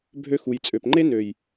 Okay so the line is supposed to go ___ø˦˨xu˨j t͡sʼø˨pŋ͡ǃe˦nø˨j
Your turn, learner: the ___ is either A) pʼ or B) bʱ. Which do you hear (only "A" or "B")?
B